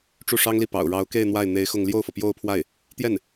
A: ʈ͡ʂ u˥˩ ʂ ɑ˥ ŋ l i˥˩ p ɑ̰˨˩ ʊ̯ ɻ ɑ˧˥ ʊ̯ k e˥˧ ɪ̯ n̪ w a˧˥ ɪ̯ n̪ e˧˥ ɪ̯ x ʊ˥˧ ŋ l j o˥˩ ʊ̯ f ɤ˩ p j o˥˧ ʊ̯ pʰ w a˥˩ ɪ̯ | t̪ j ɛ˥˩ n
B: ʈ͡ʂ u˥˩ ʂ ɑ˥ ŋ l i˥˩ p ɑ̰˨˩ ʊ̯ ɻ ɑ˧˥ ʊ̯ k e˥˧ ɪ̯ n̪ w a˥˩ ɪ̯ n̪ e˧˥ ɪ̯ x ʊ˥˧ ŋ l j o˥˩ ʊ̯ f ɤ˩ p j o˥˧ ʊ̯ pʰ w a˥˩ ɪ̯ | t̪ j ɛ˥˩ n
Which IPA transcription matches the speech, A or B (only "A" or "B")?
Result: B